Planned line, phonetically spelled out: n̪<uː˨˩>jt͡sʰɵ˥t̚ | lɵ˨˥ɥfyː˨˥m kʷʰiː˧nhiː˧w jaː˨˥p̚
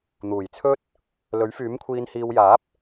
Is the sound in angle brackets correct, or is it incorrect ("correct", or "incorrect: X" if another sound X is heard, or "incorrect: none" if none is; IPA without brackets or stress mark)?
correct